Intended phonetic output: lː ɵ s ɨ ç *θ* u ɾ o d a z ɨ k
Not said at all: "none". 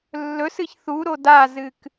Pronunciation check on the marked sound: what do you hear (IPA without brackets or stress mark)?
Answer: θ